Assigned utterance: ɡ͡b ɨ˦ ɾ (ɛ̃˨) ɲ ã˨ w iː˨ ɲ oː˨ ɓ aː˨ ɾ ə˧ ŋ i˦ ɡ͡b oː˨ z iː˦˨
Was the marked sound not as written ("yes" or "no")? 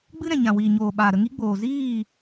no